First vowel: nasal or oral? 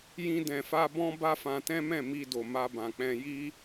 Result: nasal